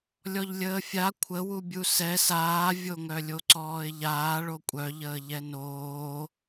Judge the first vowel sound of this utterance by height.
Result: mid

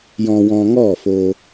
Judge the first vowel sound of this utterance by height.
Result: mid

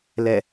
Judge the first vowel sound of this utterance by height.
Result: mid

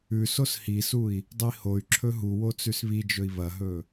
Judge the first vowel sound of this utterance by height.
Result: high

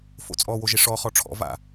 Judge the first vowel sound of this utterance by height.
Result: mid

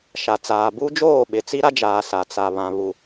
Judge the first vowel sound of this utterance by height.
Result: low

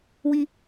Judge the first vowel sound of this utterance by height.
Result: high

